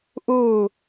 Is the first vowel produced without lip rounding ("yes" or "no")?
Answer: no